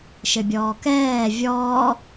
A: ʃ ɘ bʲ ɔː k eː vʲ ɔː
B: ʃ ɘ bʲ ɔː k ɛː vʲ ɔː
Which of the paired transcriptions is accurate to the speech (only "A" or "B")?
B